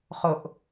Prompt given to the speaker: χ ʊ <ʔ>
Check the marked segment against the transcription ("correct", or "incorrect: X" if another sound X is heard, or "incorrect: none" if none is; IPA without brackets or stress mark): correct